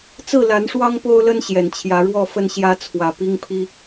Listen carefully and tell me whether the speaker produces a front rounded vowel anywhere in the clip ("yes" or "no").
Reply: no